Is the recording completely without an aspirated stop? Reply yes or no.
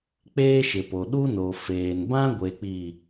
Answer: yes